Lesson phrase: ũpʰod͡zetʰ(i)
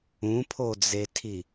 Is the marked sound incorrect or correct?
correct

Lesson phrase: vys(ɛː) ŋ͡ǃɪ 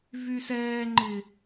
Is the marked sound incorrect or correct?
correct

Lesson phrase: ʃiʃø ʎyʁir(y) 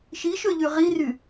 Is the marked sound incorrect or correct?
correct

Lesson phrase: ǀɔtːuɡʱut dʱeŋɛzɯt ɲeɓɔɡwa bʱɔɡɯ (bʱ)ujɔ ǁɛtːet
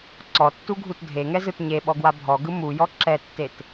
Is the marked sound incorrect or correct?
incorrect: m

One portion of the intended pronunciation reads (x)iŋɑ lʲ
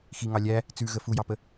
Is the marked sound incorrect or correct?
correct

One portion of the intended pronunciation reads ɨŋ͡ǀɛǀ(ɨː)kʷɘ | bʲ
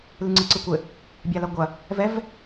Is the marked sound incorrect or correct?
incorrect: ɨ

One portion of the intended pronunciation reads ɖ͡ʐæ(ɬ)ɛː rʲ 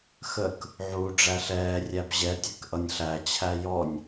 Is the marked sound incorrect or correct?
correct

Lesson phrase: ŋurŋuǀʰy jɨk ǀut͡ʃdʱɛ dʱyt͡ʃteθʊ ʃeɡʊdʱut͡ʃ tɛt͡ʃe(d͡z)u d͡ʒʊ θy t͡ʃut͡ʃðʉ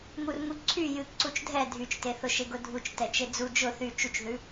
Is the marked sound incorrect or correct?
correct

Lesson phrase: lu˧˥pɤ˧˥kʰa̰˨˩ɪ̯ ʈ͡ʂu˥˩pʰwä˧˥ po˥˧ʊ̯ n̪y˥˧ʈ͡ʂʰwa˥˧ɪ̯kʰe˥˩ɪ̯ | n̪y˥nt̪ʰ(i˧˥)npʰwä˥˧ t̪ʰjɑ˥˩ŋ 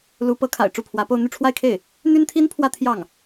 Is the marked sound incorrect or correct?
incorrect: i˥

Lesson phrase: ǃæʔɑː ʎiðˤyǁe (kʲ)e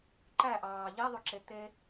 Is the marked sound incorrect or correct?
incorrect: t̪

